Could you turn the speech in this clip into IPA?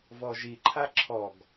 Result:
vɔʒi ǃʰaǁʰɔɡ

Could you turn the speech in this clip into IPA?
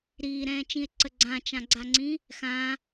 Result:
ɾiːɾɛ̃ːt͡ʃĩe̯ǀə ɡ͡ǀãt͡ʃãɡ͡ǀaŋ͡ǀĩ | xã

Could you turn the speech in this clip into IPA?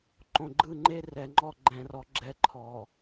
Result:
ǃõ˨ɡ͡ǃɯ˦˨ŋ͡ǃe˦ rɛ˨ŋ͡ǃɔ˦ ɡ͡ǃɛ̃˦˨rɔ˦ ɡ͡ǁɛ˦˨ǃʰɔ˨

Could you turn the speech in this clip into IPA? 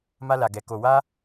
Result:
ma˧la˨ɡɛ˨ ko˨wa˧

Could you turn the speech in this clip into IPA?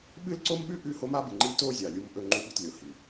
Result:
ɓɨ˦lǀo˦mɓʉ˦ ʔʉ˦ho˦ ma˦bɨ˨ŋ͡ǃi˦ to˦ zʲa˨lʲu˦mʔɵ˦ ŋ͡ǃu˦ɓi˦tlʲo˨ hi˨

